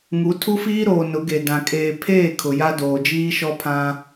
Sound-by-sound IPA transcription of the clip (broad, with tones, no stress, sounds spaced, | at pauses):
ŋ u˨˦ tʰ u˦ f iː˦ ɾ oː˨ n ʊ˨˦ ɡ e˨ d ã˨ kʼ eː˨ pʰ eː˦˨ kʰ ʊ˨ j a˦ d oː˨ d͡ʒ iː˦ ʃ ɔ˦ pʰ ã˦